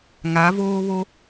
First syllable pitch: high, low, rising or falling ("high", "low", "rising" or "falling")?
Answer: rising